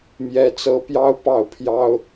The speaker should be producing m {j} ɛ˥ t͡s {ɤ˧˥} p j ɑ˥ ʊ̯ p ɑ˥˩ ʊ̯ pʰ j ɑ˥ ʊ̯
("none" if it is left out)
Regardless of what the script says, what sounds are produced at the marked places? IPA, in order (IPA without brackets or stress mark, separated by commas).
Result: j, ɤ˥